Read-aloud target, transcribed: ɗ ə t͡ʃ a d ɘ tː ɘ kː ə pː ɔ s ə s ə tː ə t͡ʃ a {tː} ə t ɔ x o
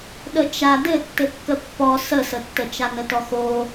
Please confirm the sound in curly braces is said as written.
no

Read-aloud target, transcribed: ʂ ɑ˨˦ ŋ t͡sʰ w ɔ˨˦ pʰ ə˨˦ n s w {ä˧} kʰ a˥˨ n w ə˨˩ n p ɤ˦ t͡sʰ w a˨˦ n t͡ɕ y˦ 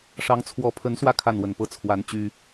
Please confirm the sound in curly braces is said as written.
yes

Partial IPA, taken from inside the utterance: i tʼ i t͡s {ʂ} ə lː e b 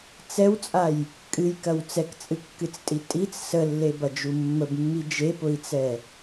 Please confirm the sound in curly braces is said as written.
no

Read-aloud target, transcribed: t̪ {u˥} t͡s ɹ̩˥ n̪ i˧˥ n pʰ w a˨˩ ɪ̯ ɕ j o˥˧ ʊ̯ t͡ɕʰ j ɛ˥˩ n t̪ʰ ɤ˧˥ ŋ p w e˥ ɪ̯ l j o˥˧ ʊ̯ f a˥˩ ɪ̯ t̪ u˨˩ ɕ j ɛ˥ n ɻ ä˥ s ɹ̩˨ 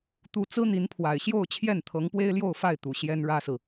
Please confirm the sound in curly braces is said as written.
yes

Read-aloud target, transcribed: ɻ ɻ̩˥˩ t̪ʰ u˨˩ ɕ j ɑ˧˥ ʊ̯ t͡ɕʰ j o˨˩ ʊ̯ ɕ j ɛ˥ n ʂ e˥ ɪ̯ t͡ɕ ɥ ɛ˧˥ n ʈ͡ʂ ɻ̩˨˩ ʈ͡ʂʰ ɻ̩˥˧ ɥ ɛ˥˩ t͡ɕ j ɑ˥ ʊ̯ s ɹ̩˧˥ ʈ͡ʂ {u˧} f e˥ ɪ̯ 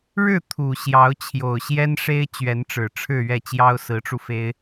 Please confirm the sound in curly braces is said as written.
yes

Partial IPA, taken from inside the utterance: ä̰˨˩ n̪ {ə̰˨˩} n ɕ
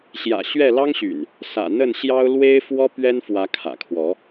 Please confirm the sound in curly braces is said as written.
no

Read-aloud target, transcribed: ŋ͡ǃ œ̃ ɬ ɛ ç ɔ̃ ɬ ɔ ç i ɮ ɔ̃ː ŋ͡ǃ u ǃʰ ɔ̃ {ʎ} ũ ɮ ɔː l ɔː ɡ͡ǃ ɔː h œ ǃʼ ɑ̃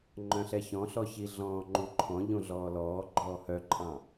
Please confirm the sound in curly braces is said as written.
yes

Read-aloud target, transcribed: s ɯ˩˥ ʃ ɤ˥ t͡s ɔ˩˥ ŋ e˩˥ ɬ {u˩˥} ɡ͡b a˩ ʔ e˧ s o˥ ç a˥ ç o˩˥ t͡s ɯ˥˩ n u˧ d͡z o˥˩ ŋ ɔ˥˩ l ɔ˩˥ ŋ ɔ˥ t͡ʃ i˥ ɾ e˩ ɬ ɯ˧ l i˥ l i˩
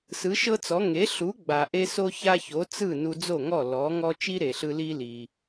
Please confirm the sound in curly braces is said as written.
yes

